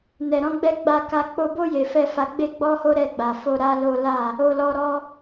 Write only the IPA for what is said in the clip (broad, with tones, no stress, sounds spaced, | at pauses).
n ɛ˨ ɾ ɔ̃˧ ɡ͡b ɛ˧ ɡ͡b a˧ k a˧ k͡p o˧ b o˦ j e˧ f ɛ˦ f a˧ ɡ͡b e˦ ɡ͡b ɔ˦ h o˦ ɾ ɛ˦˨ ɡ͡b a˨ f o˧ ɾ a˦ l o˦ l a˦˨ | o˧ l ɔ˧ ɾ ɔ˦